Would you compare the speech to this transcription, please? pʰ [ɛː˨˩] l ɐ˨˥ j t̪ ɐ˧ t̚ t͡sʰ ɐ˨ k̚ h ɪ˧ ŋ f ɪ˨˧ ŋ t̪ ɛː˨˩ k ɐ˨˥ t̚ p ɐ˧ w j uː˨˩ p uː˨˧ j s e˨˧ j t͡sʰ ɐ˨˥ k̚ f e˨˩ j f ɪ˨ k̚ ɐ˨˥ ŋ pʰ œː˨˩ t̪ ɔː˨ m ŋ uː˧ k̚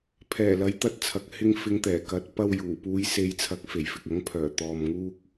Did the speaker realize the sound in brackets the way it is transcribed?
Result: yes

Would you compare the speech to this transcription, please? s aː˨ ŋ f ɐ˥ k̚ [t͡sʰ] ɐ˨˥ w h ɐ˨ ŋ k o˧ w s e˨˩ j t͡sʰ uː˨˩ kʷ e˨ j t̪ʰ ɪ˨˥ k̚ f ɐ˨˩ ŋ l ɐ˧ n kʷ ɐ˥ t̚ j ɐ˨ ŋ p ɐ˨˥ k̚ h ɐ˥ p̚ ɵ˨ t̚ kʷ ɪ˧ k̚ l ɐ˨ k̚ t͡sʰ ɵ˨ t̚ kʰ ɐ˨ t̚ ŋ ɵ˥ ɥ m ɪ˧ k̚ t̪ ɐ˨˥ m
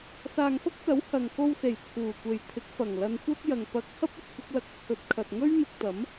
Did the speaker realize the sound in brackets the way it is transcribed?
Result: no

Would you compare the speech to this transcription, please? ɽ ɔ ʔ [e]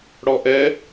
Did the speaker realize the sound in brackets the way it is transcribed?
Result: no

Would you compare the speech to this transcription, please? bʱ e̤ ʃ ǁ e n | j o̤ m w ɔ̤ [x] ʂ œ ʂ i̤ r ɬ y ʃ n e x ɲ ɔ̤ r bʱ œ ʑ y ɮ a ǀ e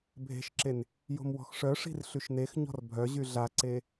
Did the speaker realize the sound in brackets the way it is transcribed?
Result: yes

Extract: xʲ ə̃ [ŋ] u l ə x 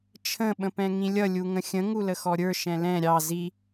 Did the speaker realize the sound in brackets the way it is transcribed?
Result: yes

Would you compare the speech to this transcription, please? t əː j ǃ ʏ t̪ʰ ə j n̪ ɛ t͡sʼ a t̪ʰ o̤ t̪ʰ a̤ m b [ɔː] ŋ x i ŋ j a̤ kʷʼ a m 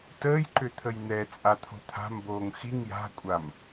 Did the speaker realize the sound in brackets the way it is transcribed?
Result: no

